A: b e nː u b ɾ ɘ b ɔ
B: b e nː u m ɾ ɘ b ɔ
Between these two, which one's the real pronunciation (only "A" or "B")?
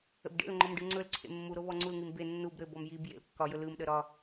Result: A